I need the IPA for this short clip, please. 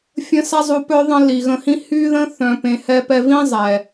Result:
fʲ ə̃˧ s a˦ zˤ u˧ p œ˦ ðˤ ə̃˦ l i˨ ɣ ə̃˧ h ĩ˦ h y˦ ð ə̃˦ θ œ̃˧ p ẽ˧ h ɛ˦ p ɛ˦ v ĩ˦ zˤ ɛ˨

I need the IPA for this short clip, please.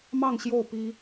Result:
m ɑ˥˧ ŋ ɕ j o˥˩ ʊ̯ p i˥

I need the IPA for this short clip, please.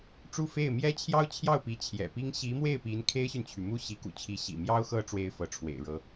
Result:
ʈ͡ʂ u˥˧ f e˥˩ ɪ̯ m j ɛ˥ t͡ɕʰ j ɑ˥ ʊ̯ t͡ɕʰ j ɑ˥˩ ʊ̯ p i˧˥ t͡ɕʰ j ɛ̰˨˩ p i˥ ŋ ɕ i˧˥ m w e˥˩ ɪ̯ p i˧˥ n kʰ e˥ ɪ̯ ɕ y˨ n t͡ɕʰ y˩ m u˥˩ ɕ i˧˥ k ṵ˨˩ t͡ɕʰ i˧˥ ɕ ḭ˨˩ m j ɑ˥ ʊ̯ x ɤ˥ ʈ͡ʂ w e˥ ɪ̯ f ɤ˧˥ ʈ͡ʂʰ w ḛ˨˩ ɪ̯ ɻ ɤ˧˥

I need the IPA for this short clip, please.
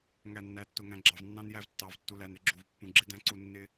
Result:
ŋ æ˨ nː æ˨ tː ʊ˨ ŋ æ̃˨ ɡ͡ǁ ɑ˨ v nː ɑ̃˦ n j æ˦ v tː ɑ˨ v tː u˨ l æ˨ n ɾ ɪ˨˦ ɡ͡ǁ u˨ v pː ũ˨ ɡ͡ǁ ɪ˦ d æ̃˦ ǀ u˦˨ nː ɪ˦

